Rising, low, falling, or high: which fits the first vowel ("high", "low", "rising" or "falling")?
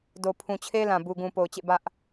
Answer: low